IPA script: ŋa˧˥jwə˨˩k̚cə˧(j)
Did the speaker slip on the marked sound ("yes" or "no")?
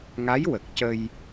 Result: no